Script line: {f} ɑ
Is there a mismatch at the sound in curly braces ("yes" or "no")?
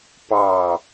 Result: yes